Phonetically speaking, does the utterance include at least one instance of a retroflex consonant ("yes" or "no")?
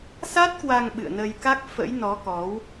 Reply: no